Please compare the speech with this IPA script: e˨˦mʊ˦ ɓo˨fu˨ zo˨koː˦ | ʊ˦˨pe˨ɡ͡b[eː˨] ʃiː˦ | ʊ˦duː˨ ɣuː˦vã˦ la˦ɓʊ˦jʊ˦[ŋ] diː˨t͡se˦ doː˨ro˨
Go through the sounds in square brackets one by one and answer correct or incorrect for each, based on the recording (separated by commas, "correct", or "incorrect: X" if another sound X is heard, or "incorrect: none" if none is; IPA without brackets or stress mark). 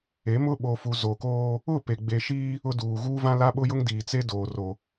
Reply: incorrect: e˨, correct